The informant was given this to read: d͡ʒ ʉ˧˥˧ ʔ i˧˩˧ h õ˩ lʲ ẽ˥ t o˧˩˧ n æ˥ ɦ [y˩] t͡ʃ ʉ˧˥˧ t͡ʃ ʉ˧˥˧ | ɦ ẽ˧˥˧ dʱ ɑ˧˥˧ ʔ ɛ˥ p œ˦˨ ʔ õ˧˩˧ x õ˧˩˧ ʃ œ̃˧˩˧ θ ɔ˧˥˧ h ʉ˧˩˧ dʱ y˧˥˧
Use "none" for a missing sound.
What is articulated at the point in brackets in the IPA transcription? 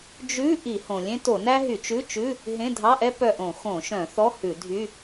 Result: y˧˩˧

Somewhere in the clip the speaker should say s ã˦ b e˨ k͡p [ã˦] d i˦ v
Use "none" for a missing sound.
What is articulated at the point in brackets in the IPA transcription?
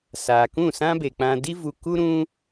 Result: ã˦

